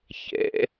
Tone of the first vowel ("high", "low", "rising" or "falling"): rising